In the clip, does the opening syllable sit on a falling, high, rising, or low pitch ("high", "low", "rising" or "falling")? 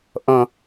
low